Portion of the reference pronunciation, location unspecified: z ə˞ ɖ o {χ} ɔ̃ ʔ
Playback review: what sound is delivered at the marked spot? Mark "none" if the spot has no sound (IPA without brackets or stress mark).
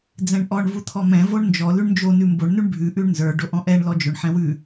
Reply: ʔ